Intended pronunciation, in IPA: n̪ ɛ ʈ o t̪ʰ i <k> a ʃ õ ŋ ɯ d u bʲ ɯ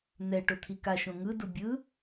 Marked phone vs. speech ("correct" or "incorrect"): correct